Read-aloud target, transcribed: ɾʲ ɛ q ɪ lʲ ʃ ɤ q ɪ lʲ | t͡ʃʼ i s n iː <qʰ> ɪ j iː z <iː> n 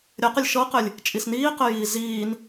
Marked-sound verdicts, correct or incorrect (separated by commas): incorrect, correct